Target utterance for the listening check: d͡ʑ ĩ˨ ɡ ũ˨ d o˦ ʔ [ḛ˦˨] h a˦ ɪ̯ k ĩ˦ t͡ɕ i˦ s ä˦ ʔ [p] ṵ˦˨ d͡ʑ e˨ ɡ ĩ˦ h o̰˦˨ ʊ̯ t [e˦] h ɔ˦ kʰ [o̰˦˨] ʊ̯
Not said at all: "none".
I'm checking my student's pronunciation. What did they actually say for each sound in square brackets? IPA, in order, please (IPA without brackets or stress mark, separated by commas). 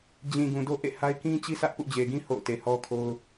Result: ḛ˦˨, p, e˨, o˦